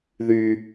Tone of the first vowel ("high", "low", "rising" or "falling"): high